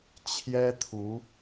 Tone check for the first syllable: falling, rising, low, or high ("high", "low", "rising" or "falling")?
high